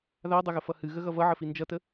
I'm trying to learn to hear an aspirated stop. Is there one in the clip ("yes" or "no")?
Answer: no